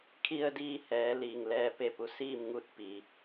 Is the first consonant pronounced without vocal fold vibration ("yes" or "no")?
yes